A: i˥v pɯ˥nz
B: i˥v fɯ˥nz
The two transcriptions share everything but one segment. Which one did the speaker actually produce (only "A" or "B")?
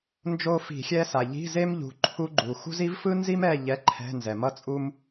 B